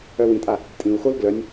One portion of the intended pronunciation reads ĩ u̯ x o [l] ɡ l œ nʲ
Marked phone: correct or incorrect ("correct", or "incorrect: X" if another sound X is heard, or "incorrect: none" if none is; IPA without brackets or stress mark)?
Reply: correct